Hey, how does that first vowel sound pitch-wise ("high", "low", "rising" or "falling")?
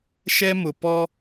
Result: high